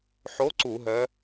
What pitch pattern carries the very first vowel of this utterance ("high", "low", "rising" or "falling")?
rising